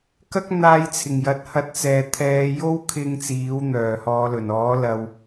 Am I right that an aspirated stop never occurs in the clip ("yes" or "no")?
no